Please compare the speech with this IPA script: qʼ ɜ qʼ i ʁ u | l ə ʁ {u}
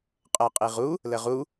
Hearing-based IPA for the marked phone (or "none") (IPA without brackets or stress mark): u